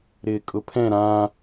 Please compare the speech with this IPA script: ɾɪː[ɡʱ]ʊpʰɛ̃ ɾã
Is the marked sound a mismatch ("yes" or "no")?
yes